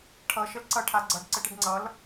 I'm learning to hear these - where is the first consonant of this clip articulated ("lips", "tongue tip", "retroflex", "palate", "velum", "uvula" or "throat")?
retroflex